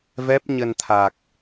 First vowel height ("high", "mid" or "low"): mid